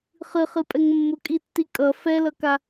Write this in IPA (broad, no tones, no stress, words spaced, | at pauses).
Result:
χɨχɨpʼɛŋ mːʊkʼitːi kʼʌ fɛlʌka